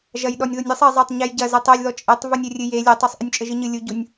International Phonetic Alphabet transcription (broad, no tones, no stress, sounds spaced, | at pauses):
ʒ ɐ j ɗ ɔ nʲ ð u nʲ ɨ sˤ ɘ zˤ e tˤ ɲ ɛ j ɟ ɐ z e tˤ e lʲ ð ɔ t͡ʃʼ e tˤ v u nʲ ɘ rʲ ɨ j e lʲ ɛ tˤ u sˤ ʔ ɨ nʲ t͡ʃʼ ɘ ʒ ɨ ɲ ɨ lʲ u ɟ u nʲ